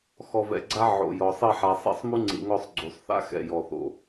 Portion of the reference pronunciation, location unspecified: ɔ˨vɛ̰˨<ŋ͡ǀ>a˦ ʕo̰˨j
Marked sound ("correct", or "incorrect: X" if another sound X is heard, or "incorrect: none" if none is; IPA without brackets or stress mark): incorrect: ɡ͡ǀ